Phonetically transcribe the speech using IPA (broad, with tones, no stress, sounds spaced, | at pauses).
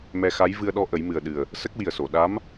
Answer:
m ɛ˧ x a˧˥ j v ɨ˧ ə̯ ɗ ɔ˧ ʔ ə˨˩˦ j m ɨ˨˩ ə̯ ɗ ɨ˨˩ ə̯ | s ə˦˥ k̚ w i˨˩ ə̯ s o˨˩˨ ɗ a˧˥ m